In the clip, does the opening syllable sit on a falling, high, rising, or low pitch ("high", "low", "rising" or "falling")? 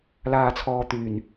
low